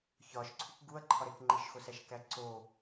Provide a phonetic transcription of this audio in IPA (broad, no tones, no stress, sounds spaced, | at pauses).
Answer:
ç ɒ ʃ ǀʰ u k ɡ u ɐ̯ ǃʰ ɒ ɾ e k ŋ͡ǃ i ʃ x o s æ ʃ k æ ǀ o